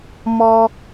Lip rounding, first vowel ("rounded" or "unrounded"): rounded